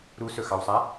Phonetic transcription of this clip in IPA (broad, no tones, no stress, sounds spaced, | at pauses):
ɾ u s ɵ x ɑ w sˤ a